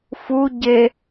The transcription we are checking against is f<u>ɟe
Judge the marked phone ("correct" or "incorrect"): correct